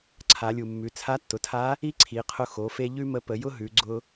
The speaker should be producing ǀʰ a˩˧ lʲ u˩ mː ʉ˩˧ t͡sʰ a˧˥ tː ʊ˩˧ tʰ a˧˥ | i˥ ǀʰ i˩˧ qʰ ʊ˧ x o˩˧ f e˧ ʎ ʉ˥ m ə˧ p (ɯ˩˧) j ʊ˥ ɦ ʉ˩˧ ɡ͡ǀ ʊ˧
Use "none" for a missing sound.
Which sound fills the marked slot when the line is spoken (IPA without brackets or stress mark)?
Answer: ə˩˧